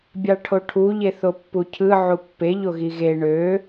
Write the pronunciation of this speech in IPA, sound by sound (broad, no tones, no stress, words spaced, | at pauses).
bʲɑʈʰoʈʰu ʎeθopːucʰɯ ʕupːe ʎoɣiɣe ɳø